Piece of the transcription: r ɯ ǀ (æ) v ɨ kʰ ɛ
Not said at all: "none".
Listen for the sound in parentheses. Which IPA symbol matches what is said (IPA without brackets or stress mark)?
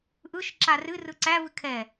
æ